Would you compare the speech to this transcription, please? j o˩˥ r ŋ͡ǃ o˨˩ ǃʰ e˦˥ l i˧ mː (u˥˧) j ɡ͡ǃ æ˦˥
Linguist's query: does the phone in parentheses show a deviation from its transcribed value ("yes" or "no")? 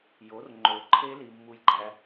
no